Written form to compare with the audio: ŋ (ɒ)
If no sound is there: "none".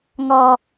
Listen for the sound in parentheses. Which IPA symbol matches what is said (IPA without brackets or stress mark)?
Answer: ɒ